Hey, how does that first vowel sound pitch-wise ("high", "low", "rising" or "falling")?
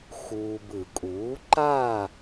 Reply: low